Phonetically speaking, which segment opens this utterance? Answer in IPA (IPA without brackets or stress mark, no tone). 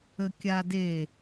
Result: ə